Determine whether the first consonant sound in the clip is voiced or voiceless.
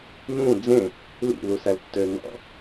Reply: voiced